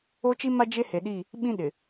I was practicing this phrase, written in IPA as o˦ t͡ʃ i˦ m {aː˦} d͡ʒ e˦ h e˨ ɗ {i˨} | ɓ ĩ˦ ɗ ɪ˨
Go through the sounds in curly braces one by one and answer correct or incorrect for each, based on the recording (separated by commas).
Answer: incorrect, incorrect